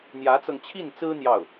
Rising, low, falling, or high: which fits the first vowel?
rising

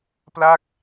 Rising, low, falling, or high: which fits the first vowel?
falling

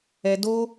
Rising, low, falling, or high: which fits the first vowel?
high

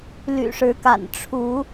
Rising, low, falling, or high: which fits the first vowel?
low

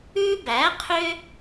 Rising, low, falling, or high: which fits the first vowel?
high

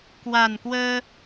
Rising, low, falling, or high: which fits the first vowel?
low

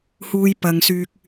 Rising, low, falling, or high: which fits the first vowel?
high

